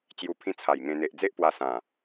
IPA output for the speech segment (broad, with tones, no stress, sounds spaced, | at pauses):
t͡ɕ j u˧ pʰ ĩ˦ t͡sʰ a˨˩ j ŋ ẽ˧ n̪ e˨ ʔ d͡z e˦ ʔ p w a˧ s ã˨˩